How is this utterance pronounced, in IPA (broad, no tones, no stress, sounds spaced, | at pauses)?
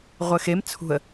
ʁʷ ɘ x e m t͡sʰ ṳ ə̯